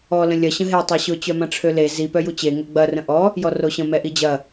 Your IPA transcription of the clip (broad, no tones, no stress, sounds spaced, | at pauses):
ɔ l ə̃ lʲ ɐ ɕ ə̃ ɦ e tˤ a ɕ ʊ t͡ɕ œ m ɐ̃ ʈ͡ʂʰ ø l e z i p œ j u t͡ɕ e ŋ o ɡ͡b ɐ r ə̃ ʔ ɔ | j ɔ r o ɕ ə̃ m ɛ ʔ i d͡ʑ ɐ